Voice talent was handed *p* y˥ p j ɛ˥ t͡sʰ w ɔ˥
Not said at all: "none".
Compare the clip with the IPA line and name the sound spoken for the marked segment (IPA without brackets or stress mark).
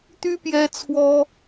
t̪